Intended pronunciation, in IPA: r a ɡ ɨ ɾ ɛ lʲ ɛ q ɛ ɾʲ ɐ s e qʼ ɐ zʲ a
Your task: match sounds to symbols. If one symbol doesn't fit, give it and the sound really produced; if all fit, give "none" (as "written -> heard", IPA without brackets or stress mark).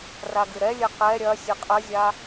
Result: s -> sʲ